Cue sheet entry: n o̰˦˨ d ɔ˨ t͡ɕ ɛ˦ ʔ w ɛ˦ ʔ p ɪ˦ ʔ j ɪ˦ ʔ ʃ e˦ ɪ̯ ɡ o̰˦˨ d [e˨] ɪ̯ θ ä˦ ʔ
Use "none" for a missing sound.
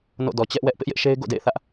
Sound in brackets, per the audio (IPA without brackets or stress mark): ḛ˦˨